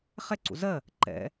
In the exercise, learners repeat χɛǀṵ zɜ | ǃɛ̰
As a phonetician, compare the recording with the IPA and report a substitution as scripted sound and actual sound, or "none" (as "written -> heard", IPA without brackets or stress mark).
none